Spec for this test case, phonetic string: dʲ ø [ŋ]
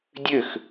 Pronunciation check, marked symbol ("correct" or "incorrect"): incorrect